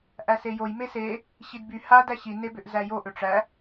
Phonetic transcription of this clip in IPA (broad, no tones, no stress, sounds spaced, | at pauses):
ʔ æ s e j o j m e s e | ɕ i d b y h a d æ ɕ i n e b ʏ ʔ z æ j o ʔ ʏ ʈ͡ʂ æ